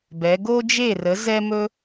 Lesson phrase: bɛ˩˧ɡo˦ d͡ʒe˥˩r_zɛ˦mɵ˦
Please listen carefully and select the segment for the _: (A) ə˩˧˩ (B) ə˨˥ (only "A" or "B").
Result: B